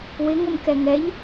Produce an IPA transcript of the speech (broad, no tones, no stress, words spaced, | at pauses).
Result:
wɪŋomkɛ ŋɛʎ